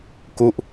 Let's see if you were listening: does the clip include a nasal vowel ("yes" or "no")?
no